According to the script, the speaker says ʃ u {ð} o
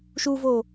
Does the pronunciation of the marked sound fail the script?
yes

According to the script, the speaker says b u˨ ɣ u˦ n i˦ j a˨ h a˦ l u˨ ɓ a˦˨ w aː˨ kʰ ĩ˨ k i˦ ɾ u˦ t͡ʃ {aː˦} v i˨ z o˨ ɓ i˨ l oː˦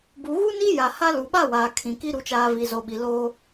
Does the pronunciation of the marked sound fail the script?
no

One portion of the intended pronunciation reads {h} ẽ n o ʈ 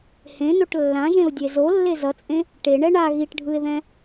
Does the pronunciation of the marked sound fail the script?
no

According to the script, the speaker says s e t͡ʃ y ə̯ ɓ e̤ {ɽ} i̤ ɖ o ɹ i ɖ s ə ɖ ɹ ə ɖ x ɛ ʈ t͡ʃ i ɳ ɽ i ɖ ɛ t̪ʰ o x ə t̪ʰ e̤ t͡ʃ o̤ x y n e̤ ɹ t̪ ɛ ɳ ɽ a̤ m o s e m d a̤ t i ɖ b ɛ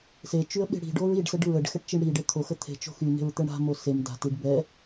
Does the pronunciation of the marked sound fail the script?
no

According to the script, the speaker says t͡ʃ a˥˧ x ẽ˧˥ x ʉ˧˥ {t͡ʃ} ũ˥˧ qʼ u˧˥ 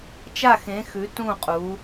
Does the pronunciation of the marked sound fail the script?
yes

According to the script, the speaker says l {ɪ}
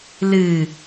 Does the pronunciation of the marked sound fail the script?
yes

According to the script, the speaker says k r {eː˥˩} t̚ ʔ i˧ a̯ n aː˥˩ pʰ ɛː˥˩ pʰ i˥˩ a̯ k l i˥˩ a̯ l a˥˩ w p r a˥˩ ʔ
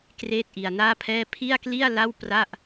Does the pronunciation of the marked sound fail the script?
no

